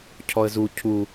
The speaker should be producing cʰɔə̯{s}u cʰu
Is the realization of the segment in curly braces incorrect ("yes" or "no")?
yes